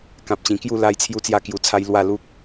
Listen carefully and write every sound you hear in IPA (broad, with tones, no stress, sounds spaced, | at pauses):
k ã˨ p̚ t͡ɕ ĩ˨˩ k j u˥˧ l a˦ j t͡sʰ j u˦ t͡s j a˥˧ k j u˧ t͡sʰ a˦ j l w a˥˧ l u˦ k̚